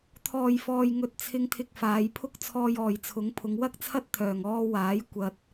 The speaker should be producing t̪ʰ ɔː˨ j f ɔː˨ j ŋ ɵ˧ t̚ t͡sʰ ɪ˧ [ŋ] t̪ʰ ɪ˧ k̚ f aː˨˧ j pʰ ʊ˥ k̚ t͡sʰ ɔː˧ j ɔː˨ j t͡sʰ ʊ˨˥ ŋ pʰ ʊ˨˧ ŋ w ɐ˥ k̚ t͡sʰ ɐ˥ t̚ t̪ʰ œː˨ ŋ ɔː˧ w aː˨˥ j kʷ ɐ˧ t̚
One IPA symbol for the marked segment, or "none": ŋ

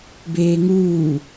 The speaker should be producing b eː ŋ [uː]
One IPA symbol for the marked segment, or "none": uː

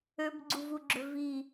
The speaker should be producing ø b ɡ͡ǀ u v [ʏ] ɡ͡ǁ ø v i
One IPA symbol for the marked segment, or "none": u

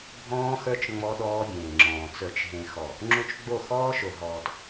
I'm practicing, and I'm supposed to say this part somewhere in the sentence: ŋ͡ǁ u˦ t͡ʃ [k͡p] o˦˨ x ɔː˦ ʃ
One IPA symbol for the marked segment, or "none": ɡ͡b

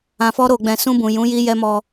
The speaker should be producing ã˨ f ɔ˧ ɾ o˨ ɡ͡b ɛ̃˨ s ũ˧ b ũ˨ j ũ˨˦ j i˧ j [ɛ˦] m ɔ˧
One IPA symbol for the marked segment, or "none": ɛ˦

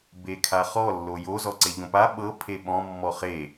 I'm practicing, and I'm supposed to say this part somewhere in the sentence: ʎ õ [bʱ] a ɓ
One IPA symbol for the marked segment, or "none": p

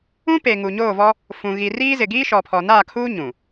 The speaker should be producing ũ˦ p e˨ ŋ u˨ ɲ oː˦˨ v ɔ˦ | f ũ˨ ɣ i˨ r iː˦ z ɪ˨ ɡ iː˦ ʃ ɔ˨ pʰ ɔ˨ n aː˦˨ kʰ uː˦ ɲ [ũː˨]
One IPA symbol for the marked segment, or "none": ũ˨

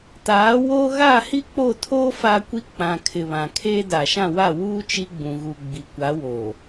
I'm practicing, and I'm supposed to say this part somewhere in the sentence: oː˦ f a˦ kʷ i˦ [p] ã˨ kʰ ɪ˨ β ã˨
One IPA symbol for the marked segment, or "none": k͡p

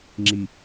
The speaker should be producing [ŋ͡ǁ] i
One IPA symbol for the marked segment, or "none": ŋ͡ǁ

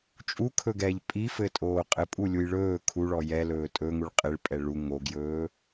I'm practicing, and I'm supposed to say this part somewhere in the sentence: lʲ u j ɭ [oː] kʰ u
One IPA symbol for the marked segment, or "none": ɵː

